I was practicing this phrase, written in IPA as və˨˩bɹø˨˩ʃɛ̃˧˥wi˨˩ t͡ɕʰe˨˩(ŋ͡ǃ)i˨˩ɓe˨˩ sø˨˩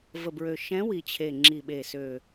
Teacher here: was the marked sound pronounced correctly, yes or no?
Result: no